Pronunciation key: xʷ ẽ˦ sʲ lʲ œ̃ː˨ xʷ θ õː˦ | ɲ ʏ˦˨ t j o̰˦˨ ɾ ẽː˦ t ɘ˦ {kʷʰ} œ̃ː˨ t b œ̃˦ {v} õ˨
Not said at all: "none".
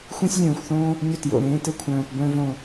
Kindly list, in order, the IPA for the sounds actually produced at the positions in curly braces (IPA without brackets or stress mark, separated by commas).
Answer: kʷʰ, v